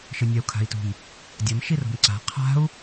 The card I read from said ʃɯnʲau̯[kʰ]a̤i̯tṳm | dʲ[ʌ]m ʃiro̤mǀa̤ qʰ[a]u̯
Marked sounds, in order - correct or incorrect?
correct, correct, incorrect: a̤

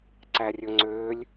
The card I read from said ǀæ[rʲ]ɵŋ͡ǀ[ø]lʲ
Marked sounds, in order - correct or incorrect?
correct, correct

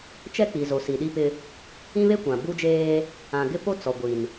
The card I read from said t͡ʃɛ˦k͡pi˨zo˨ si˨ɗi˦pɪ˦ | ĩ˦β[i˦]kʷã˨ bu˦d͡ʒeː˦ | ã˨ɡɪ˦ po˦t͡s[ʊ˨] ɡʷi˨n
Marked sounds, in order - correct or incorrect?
incorrect: e˦, incorrect: ɔ˨

